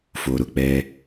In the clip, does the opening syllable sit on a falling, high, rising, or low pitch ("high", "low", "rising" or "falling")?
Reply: low